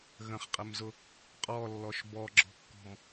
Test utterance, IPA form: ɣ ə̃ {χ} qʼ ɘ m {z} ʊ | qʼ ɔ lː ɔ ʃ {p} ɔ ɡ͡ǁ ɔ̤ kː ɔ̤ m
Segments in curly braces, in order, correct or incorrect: correct, correct, incorrect

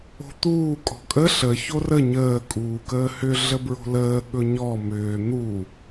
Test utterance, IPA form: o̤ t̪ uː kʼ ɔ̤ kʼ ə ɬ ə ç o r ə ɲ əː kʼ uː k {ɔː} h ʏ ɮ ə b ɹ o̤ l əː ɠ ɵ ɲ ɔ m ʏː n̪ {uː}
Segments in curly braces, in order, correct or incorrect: incorrect, correct

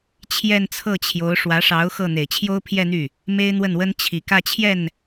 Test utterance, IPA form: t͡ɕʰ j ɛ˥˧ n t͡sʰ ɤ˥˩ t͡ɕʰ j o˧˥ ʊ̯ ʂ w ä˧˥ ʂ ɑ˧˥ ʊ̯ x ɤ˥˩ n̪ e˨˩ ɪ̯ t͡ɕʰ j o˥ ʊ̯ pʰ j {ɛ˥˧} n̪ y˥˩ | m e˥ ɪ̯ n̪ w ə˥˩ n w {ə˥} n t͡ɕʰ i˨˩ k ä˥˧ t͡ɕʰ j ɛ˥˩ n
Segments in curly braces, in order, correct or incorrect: correct, correct

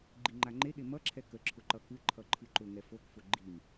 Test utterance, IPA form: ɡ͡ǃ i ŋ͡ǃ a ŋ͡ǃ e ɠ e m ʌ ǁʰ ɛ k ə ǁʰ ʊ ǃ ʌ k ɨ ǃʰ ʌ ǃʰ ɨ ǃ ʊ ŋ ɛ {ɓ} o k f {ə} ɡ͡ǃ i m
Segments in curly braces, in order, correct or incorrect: incorrect, incorrect

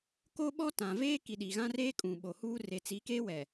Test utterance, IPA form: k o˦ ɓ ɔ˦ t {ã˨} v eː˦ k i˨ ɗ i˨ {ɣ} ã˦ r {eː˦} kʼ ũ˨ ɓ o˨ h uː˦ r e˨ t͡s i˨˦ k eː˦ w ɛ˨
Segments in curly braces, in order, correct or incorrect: correct, correct, correct

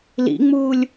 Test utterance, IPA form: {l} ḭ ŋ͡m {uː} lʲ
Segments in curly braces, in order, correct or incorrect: correct, correct

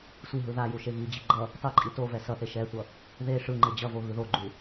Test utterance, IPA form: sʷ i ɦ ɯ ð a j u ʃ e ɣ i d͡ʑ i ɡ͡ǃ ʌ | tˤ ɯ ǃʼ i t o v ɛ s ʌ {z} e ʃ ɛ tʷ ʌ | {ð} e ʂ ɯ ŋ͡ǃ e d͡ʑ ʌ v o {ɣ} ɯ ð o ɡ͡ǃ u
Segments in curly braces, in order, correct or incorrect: incorrect, correct, correct

